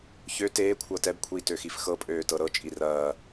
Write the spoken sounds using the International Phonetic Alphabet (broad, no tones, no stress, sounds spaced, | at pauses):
ç ø t eː kʷʰ ɤ t ɛ b kʷʰ iː t ø x i f x ɤ pʼ øː t ɤ ɾ ɤ t͡ʃʼ i r ɐː